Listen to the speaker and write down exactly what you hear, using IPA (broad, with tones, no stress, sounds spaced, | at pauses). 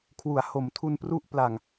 kʰ w u˩˦ a̯ h o˩˦ m tʰ u˧ n p r u˥˩ ʔ p l a˨˩ ŋ